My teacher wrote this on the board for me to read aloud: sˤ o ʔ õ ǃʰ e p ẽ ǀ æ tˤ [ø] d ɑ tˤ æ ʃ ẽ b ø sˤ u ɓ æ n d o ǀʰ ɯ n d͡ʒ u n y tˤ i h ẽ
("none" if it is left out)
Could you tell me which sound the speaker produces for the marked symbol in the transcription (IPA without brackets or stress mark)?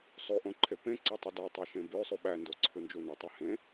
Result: ø